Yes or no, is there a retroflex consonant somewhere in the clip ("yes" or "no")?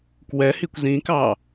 no